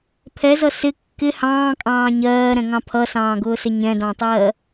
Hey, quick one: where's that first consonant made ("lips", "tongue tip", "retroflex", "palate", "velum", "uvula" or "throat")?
lips